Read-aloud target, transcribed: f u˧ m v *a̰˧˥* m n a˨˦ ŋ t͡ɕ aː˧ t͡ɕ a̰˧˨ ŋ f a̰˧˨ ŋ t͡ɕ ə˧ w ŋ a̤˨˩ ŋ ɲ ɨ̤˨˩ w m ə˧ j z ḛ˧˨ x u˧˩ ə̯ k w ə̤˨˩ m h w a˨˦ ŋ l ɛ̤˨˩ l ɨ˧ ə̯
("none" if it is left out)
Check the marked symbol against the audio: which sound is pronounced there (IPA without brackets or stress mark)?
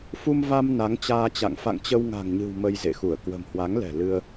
a˧